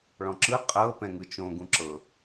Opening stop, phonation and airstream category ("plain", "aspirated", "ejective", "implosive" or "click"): click